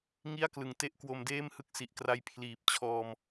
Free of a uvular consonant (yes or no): yes